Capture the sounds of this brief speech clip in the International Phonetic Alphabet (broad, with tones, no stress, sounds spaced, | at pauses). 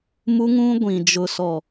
m u˦ ŋ ũ˦ ɡʷ ĩ˨ d͡ʒ ʊ˨ s ɔ˨